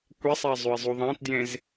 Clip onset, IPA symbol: kʷ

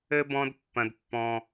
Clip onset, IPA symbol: ɘ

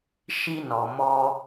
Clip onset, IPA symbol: ʃ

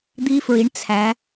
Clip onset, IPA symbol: d̪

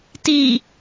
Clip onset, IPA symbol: t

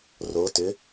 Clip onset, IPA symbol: r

